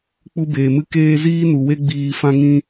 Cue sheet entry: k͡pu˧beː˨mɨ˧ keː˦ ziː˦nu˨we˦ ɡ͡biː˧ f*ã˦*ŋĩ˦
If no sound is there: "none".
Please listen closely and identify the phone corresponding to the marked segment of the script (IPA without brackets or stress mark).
ã˦